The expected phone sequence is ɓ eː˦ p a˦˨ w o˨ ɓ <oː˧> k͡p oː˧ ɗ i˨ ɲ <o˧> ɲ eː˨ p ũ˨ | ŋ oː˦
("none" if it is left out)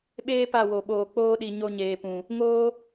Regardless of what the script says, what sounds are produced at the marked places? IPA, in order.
oː˨, o˧

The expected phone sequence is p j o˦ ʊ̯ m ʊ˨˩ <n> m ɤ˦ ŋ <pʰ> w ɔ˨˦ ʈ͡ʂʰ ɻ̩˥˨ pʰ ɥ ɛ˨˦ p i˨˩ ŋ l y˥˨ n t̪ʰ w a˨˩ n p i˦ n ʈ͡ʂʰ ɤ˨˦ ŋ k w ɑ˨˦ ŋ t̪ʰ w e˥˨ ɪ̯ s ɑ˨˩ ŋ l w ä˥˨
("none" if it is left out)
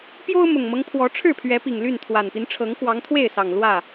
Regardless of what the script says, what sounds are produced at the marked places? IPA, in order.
ŋ, pʰ

